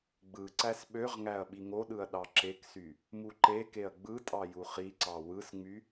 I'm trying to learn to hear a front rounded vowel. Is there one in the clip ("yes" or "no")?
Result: yes